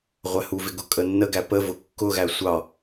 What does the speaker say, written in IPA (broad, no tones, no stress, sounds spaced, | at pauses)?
ʁʷ æ h u v ɪ ɡ ʊ kʼ ə nː ə ɡ æ p ə v ʊ kː ʊ ɣ æ sʷ ɑ